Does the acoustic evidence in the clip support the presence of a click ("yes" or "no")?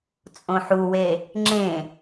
yes